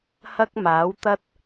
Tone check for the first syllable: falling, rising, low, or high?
high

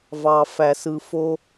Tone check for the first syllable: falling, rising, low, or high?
low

